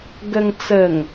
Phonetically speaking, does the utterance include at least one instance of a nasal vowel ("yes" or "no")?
no